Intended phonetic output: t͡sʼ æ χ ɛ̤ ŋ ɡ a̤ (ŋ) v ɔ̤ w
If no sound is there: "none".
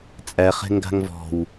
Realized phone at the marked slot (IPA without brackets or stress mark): ŋ